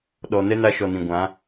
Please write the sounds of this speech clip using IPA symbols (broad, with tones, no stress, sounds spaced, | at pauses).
ɗ ɔ˨ n ɛ˦ n a˧ ʃ ɔ˨ n ĩ˨ ɡʷ ã˨˦